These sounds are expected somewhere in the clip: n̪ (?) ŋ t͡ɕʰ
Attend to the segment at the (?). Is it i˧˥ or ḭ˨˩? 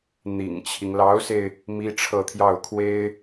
ḭ˨˩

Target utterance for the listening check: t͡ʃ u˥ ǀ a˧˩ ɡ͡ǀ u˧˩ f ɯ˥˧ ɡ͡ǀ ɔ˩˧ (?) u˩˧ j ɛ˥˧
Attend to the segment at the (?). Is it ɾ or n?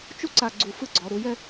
ɾ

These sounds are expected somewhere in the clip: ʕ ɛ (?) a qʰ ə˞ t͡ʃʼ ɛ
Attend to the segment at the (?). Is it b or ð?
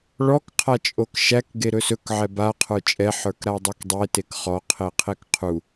b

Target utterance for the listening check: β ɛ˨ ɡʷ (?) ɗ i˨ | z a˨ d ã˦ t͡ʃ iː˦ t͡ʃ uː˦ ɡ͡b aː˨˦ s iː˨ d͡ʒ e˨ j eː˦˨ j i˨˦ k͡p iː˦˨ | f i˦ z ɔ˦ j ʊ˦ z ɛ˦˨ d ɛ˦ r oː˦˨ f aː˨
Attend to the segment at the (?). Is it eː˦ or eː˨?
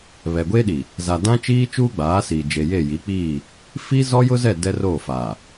eː˦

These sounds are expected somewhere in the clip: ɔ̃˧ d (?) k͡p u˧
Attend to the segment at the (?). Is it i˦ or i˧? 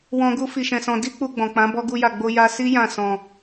i˦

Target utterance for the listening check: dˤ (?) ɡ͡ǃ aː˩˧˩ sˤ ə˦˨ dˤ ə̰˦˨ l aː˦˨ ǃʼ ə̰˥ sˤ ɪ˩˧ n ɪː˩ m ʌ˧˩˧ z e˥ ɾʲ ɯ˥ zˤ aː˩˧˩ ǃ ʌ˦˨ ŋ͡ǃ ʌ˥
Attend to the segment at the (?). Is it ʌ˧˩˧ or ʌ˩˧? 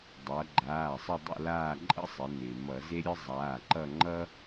ʌ˩˧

